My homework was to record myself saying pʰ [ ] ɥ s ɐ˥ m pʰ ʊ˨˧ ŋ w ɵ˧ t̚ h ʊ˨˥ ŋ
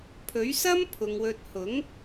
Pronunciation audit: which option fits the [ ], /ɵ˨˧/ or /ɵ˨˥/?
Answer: ɵ˨˥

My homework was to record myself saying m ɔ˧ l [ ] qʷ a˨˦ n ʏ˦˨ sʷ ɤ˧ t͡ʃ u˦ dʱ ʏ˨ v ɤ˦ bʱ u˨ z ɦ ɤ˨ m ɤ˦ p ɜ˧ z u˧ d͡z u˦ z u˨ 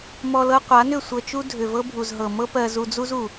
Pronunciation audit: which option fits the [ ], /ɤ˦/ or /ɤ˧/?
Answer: ɤ˧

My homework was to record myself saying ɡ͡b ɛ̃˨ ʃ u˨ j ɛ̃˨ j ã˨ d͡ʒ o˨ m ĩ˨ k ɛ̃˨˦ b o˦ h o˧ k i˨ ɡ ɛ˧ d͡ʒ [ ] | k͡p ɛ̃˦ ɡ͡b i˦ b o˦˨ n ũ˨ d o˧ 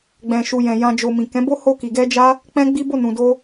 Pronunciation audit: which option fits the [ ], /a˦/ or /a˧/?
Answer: a˦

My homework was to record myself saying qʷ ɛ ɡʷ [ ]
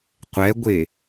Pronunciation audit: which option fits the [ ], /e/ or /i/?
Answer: e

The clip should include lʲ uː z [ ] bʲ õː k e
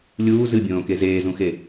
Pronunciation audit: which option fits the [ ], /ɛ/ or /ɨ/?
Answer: ɨ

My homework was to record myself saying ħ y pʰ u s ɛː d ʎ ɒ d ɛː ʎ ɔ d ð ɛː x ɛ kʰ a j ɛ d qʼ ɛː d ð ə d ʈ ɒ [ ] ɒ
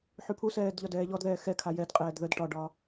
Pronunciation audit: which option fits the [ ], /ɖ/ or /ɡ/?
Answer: ɖ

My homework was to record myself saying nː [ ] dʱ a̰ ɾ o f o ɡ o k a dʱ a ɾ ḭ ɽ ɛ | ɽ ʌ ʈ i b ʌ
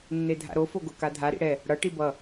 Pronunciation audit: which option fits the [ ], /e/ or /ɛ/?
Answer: e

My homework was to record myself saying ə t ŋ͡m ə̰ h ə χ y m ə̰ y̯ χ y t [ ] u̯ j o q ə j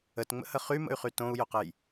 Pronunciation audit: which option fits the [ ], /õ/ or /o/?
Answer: õ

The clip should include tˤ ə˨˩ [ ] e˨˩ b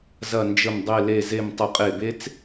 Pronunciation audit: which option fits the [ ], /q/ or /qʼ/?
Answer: qʼ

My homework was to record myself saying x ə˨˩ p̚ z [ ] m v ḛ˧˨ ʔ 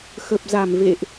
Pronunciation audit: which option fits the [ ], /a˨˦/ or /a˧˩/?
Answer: a˧˩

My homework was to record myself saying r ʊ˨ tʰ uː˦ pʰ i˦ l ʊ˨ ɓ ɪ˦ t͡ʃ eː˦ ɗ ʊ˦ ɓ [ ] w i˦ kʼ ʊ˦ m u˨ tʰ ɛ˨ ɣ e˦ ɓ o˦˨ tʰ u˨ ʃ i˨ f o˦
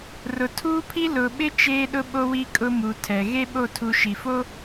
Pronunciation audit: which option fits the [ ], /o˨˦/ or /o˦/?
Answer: o˦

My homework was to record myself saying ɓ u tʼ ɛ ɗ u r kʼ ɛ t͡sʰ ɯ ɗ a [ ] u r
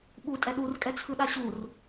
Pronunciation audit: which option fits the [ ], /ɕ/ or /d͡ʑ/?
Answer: ɕ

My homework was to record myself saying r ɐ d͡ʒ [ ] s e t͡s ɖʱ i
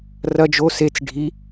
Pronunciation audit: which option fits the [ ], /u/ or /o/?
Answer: o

